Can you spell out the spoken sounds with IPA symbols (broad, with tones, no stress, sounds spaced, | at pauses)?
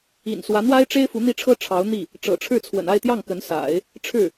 ḭ˨˩ n s w ä˧˥ n̪ w a˥ ɪ̯ ʈ͡ʂ e˥ ɪ̯ f u˧˥ n̪ i˥˩ ʈ͡ʂʰ ɤ˥ ʈ͡ʂʰ ɑ˧˥ ʊ̯ n̪ i˥˩ | ʈ͡ʂ ɤ̰˨˩ ʈ͡ʂʰ ɻ̩˥˩ t͡sʰ w ə̰˨˩ n a˥˧ ɪ̯ t̪ j ɑ˥˩ ŋ k ə˧˥ n s a̰˨˩˦ ɪ̯ | ʈ͡ʂʰ ɻ̩˥˩